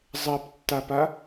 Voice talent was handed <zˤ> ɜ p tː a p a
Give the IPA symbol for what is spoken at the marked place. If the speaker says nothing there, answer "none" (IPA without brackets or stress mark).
zˤ